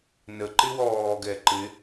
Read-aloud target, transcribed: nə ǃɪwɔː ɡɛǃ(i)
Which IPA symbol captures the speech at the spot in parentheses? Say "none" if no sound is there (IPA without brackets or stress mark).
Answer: ɪ